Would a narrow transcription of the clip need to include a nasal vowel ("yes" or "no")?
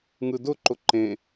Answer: yes